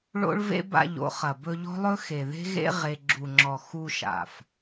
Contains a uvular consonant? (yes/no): yes